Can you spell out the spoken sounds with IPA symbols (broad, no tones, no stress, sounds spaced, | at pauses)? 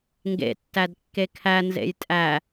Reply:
ŋ ɡ ḛ tː æ d kː e kʰ æ n z ḛ j tʼ æ